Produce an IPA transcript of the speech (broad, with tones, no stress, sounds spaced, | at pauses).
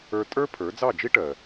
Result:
ə˞˧ tʼ ə˞˥ pʰ ə˞˩˥ d͡z ɑ˥˩ d͡ʒ i˥ ʈ ɜ˩